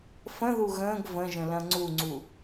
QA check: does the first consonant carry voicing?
no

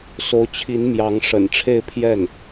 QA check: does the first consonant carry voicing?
no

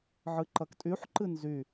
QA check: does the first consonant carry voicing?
yes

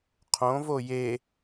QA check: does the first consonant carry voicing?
no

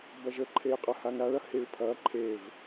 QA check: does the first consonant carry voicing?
yes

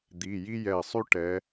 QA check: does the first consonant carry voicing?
yes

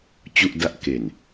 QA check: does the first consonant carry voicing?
no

